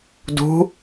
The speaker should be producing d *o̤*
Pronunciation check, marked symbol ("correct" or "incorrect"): incorrect